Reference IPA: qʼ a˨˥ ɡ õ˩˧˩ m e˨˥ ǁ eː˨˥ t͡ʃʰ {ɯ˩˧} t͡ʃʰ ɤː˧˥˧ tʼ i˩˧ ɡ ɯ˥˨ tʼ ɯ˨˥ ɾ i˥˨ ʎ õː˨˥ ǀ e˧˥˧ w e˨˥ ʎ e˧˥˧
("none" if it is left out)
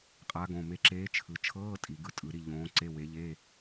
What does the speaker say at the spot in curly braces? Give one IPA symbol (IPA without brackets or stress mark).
ɯ˩˧